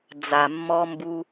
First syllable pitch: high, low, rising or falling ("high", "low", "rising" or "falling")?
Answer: low